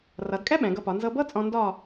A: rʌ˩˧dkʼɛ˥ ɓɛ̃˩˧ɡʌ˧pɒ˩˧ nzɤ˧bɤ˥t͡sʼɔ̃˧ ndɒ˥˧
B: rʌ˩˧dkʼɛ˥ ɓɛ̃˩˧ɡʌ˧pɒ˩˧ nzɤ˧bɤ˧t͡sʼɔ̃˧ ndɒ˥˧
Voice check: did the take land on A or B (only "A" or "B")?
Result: A